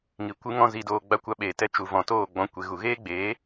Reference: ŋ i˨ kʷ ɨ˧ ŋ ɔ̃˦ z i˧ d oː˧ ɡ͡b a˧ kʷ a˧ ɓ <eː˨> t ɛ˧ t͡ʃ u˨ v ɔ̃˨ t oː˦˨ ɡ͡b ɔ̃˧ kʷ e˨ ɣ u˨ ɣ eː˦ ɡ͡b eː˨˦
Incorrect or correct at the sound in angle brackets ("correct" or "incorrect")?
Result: correct